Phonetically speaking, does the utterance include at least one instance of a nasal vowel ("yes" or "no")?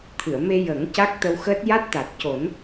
no